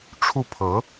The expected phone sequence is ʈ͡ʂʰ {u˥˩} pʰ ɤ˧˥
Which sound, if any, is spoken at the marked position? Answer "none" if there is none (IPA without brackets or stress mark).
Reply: u˥˩